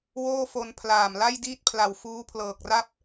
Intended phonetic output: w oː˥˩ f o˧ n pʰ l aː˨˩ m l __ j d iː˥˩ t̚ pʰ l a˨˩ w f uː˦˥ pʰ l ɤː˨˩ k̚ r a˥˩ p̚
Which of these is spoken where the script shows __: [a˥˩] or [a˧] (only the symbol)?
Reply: a˥˩